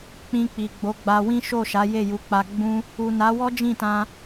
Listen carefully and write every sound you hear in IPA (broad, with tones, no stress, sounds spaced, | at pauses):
k͡p ĩ˧ k͡p i˨ ɡ͡b o˨˦ ɡ͡b a˧ w ĩ˦ ʃ o˦˨ ʃ a˨˦ j e˦˨ j u˨˦ k͡p a˧ ɡ͡b ũ˦ | u˨ n a˨˦ w ɔ˦ d͡ʒ ĩ˦˨ t ã˧